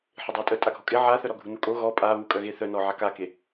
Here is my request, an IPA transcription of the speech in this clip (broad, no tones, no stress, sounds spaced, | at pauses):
ħ ɪ dˤ a tʼ œ tʼ a ɡʱ ɔ kʼ ɪ ʕ a θ œ ɾ ɔ ɡʱ u n u kʼ o ɣ ɔ pʼ a β u kʼ œ ɣ e θ œ n ɔ ʕ a k a k e